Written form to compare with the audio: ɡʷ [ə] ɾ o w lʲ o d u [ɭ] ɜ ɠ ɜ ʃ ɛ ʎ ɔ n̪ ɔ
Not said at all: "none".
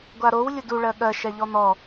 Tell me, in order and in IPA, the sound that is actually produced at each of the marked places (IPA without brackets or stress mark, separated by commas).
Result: a, ɭ